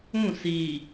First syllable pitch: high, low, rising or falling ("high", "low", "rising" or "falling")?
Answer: falling